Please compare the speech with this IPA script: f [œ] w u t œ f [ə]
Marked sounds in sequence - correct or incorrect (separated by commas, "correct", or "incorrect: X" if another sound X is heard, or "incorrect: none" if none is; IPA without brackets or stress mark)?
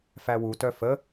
incorrect: æ, correct